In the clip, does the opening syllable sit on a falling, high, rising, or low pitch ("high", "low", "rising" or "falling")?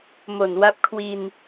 low